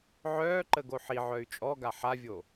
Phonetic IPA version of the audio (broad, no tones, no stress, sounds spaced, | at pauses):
ʕ œː ǃ ə ɡ o ħ i ʕ œ y̯ t͡ʃʼ ɔ ɡ a ħ a vʲ o